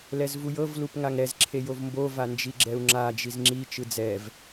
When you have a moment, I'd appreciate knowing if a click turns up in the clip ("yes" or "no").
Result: yes